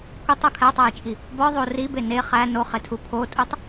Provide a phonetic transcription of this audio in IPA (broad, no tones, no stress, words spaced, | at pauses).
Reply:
kʷetˤu kʰætˤæjt͡ʃʼi | bɒðˤo ribe ne χæ noχetʰu pʰotʼutˤ